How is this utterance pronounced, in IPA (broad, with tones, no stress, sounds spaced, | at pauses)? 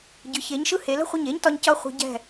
ɟ ɯ˩˧ ç e˩˧ ɲ ʃ ɯ˧˩ h e˩˧ l ə̤˥˧ χʷ ə˧˩ ɲ e˥ ɲ t ɒ˧ ɲ c ʌ˧˩ χʷ e̤˧ ɟ ɛ̤˧˩